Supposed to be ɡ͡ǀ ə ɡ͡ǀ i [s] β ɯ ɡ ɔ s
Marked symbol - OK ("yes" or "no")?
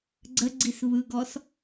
yes